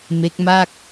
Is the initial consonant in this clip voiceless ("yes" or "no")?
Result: no